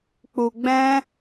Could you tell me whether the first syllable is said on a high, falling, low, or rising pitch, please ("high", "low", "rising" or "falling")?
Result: low